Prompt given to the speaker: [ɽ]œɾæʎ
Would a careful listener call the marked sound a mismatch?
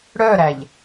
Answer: no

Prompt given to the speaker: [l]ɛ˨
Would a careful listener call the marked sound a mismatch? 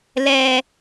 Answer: no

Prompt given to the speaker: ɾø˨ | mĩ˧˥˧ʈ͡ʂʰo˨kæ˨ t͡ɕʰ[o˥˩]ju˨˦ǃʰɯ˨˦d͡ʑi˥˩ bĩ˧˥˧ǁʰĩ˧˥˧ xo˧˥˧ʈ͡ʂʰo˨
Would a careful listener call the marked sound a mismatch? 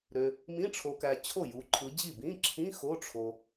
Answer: no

